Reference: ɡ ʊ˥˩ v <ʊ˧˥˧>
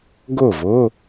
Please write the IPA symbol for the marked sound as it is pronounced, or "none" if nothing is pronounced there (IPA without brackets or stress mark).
ʊ˧˥˧